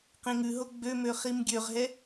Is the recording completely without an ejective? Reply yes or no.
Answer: yes